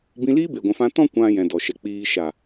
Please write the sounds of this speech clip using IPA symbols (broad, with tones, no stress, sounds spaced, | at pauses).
b ĩ˧ l iː˦ b e˨ ɡʷ ɛ̃˨ f ã˧ t ɔ̃˦ kʷ ã˧ j ɛ̃˨ d ɔ˨ ʃ ɛ˨ k͡p iː˧ ʃ a˨